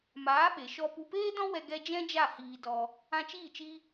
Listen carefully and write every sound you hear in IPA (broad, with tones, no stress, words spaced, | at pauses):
maː˨˦ɓe˨ ʃɔ˧ pu˦ peː˦dɔ̃˦wɛ˧ ɡɛ˦ d͡ʒɛ̃˦d͡ʒa˦˨ hiː˧dɔ˧ | ã˧t͡ʃiː˦˨ t͡ʃi˦